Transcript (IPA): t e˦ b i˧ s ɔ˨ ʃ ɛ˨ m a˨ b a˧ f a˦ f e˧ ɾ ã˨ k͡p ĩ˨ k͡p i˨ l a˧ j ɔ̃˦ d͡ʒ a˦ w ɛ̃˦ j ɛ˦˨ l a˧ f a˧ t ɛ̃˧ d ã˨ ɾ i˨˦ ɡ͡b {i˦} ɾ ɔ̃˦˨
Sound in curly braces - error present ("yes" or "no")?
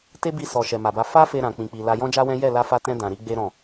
yes